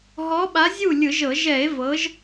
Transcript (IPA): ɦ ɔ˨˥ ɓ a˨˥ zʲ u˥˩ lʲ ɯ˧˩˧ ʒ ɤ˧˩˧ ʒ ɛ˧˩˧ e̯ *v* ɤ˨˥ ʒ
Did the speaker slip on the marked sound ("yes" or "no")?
no